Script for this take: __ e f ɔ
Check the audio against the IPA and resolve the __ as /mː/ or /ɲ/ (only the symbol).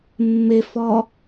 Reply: mː